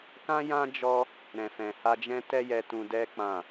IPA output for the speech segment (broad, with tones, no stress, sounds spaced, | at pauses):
k ã˦ j ã˦ d͡ʒ ɔ˧ | ɾ ɛ̃˨ f ɛ̃˨ h a˧ d͡ʒ ɛ̃˦ t ɛ˦ j ɛ˧ t ũ˧ d ɛ˦ k͡p ã˦˨